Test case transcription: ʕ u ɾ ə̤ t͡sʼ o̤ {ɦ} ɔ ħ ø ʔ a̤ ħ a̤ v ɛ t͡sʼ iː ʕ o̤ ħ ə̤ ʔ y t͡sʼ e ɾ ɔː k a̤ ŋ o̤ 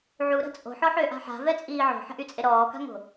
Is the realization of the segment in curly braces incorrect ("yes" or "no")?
yes